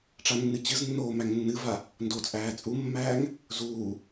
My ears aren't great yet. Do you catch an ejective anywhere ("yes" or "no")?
yes